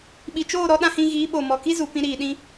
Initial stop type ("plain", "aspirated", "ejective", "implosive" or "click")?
implosive